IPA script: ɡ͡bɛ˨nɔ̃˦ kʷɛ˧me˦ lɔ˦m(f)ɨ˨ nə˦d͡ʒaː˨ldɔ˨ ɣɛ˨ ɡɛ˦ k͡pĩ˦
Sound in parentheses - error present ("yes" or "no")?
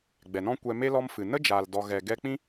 no